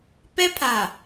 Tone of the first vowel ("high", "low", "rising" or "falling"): high